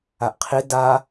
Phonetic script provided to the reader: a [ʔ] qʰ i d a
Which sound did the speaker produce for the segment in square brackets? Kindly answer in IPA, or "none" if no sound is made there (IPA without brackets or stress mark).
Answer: ʔ